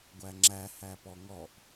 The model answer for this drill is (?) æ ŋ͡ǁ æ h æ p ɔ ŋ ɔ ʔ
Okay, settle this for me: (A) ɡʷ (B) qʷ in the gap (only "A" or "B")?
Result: A